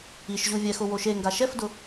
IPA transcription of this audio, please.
i ʃ ʑ u vʲ ɛ x ʊ w o ʃ e ŋ ɡ a ʃ ɛ f d ʊ

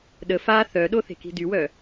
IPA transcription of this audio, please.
ɗ ə f a θ œ ɗ o θ e̤ k i̤ d y w œ

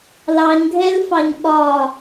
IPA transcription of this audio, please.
l ɑ ɲ ɡʱ ɛ l f ɑ ɲ ɓ ɒ

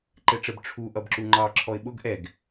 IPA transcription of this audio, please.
ǃ ɛ ʈ͡ʂ ə b ʈ͡ʂʰ u ʔ ʌ b ǁ u ŋ͡ǃ ɑ ǁʰ ɔ ɪ̯ ɓ ʊ ɡ ʔ ɛ ɡ

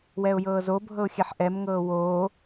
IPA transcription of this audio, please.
w ɛ ʊ̯ j ɤː z o bʱ ɤ ʊ̯ xʲ ɛ ħ ʔ ɛ m ŋ ɤː w oː

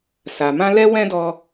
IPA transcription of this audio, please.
s a˨ m ã˧ l ɛ˦ w ɛ̃˦ d ɔ˦

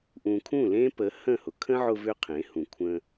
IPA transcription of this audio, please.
ʔ ũ˨ kʰ ũ˦˨ l ẽ˦ p ə˨˦ h ə̃˦˨ h ʊ˨ kʰ ə̃˦ ʕ ʊ˧ v ʏ˦ qʰ ẽ˨˦ h ũ˨ kʷʰ ə̃˧

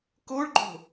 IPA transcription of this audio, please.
k o ɭ ɡ͡ǃ o̤

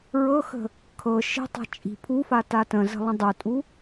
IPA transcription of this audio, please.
ɹ ɤ x ə̤ | kʰ ɤ ʃ i̤ tˤ a̤ t͡ʃʼ i̤ pʰ u f a t a t ə̃ z ə̤ lˠ ə̃ dˤ u tʼ u

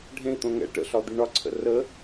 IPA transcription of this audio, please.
ɖʱ ẽ i̯ t̪ õ ŋ ɛ̰ ʈ ə̰ ɬ ɒ d̪ i ɳ ɒ ǀʰ ə̰ r ə

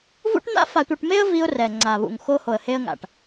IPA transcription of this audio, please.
v ṵ˦ ʈ n̪ a̰˦ f a˨ tʷ ɯ˨ ʈ m e˦ ə̯ v i˦ ʊ̯ r ɛ˨ ŋ͡ǀ a˨ β ṵ˨ ŋ x o˦ h o˨ ə̯ h e˦ ə̯ ŋ a̰˨ ʈ

